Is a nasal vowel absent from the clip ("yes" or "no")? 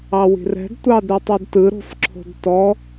yes